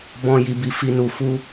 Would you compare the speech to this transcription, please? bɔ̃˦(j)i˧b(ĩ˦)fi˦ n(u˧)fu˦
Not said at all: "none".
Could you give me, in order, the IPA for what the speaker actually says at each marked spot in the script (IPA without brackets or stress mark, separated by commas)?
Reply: j, i˦, u˧